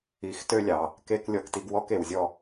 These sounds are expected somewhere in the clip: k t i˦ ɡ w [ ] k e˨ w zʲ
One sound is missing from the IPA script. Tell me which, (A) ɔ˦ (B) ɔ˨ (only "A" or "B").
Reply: A